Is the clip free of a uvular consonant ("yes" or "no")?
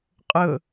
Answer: no